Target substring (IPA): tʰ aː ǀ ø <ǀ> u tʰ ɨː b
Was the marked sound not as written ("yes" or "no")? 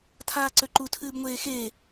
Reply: yes